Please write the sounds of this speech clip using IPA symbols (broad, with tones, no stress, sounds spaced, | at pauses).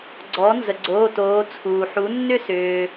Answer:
ɡ͡ǀ ɔ˩˥ n z ə˩ ɡ͡ǀ oː˩˧˩ t oː˩˧ t͡sʰ uː˩ ħ u˩˥ nː ʏ˥˧ s ʏː˩